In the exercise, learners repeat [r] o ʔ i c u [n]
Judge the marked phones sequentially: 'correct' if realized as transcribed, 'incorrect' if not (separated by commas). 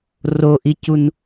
correct, correct